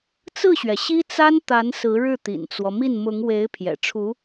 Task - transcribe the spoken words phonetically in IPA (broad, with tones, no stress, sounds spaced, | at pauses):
t͡s ɹ̩˥˩ ɕ ɥ ɛ˩ ɕ i˥ t͡s a˥ n t̪ a˧˥ n s ɹ̩˧˥ ɻ ɻ̩˥˩ t̪ ḭ˨˩ n t͡s w ɔ˦ m i˥˩ n m ʊ˧˥ ŋ w e˧˥ ɪ̯ pʰ j ɛ̰˨˩ ʈ͡ʂʰ u˧˥